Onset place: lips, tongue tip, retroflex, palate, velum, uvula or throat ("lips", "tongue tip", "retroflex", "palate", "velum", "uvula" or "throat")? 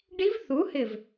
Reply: retroflex